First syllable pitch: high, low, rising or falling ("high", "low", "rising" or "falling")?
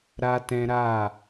high